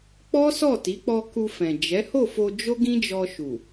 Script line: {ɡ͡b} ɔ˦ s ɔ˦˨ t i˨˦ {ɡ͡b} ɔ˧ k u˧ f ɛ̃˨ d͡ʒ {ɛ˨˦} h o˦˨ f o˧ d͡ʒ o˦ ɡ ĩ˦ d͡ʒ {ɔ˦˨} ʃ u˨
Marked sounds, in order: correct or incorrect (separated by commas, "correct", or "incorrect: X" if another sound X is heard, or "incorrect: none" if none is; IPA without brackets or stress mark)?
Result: incorrect: k͡p, incorrect: k͡p, correct, incorrect: ɔ˧